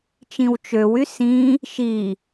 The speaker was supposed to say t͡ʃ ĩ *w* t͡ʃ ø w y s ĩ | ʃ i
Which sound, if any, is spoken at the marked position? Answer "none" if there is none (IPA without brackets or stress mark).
w